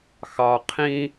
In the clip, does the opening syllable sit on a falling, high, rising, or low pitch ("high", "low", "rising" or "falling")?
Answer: low